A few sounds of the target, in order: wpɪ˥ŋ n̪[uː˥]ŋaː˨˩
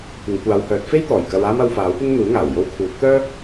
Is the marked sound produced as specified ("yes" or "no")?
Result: no